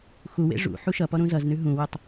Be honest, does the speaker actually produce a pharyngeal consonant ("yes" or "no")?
yes